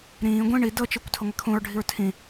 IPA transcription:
ɾ ĩː ɡʷ ĩ ɳ i d ɤ t͡ʃ i kʷ tʰ ɤ ŋʷ e kʰ ũ ɹ ɖʱ i ɹ tʰ ĩ

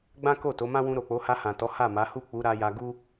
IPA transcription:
ɡ͡b ã˦ k o˦˨ t o˨˦ m ã˦ w ũ˧ ɾ o˨ k͡p o˨˦ h a˧ h ã˨ t ɔ˨˦ h a˦˨ m a˨˦ h u˦˨ k͡p u˨˦ ɾ a˧ j a˧ ɡ u˦

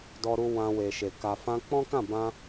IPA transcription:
d ɔ˧ ɾ u˧ w ã˧ w e˨ ʃ e˨ k a˨ f ã˧ k͡p ɔ̃˦ k ã˦˨ b ã˧

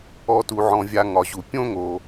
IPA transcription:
ɔ˨ t u˩ ʕ ɔ̃˩ vʲ a˨ ŋ ɒ˩ ʑ u˩ pʲ õ˦ ŋ o˩

